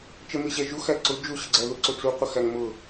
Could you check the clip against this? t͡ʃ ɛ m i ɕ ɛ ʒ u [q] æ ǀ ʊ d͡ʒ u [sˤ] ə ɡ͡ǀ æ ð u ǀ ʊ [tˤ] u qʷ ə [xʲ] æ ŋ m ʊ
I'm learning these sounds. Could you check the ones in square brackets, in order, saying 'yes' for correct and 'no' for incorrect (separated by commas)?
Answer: no, no, no, no